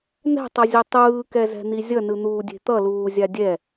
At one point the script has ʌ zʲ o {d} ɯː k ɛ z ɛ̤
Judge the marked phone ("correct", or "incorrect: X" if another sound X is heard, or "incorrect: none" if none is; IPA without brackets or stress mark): incorrect: tˤ